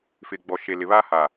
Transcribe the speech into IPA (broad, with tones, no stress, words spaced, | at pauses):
fɪ˨ɡ͡bɔ˨ ʃe˨lɪ˨βa˦ha˨